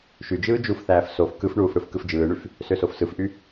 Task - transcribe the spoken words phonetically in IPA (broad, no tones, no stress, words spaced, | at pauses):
ʃyd͡ʒɯː d͡ʒufθæːf sof kɯfɳuːf ɽɯfkɯfd͡ʒɯːɳyf | søsofsɯfʔy